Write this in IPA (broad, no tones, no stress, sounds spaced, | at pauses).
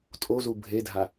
tʼ o z u bʱ e dʱ a